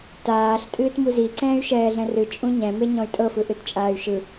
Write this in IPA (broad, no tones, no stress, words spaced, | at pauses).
taːɬ tʼɨːtmuzi ǀɛ̃ːy̯ʃɛːɮɛ̃rɨ t͡ʃʼũɲɛ̃ meɲɔ̃y̯tʼɤ fɯʔɨtt͡ʃʼaːy̯ʃɯ